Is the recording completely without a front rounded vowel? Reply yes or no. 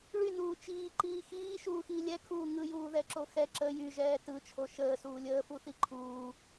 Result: no